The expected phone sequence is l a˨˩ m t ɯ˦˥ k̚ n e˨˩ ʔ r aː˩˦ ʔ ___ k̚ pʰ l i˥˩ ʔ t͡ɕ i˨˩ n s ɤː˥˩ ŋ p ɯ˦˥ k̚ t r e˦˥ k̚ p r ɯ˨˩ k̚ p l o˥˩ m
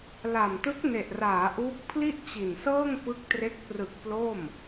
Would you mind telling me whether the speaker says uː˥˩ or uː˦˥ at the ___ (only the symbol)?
uː˦˥